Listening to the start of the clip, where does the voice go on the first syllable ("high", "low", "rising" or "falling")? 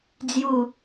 low